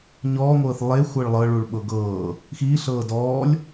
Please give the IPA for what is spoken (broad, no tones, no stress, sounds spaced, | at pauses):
ɲ ɔː ŋʷ ɤː θ lˠ e xʷ ɤ ɭ lˠ ɤ ɭ u ɭ ɓ ɤ ɡ ɤː | x iː ɬ ɤː d ɔː lʲ